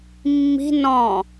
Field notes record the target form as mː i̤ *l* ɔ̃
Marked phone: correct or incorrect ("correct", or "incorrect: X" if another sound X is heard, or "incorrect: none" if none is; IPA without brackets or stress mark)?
incorrect: n